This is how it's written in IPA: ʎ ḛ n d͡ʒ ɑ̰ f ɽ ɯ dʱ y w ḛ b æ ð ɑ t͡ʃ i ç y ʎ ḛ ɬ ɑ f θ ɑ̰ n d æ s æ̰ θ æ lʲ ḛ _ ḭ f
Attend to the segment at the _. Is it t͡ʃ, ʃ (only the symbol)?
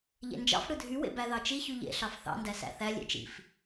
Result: t͡ʃ